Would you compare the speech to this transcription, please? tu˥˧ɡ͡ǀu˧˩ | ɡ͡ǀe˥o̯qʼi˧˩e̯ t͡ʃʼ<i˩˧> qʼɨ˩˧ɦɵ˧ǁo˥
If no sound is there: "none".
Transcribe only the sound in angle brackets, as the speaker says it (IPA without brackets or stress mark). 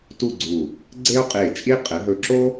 i˥